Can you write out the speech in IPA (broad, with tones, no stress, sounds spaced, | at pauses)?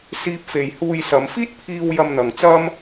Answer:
s iː˧ p̚ f e˨ j h uː˧ j s ɐ˨˧ m f iː˥ t̚ pʰ iː˧ w j ɐ˧ m n̪ ɐ˨ ŋ t͡s ɐ˥ m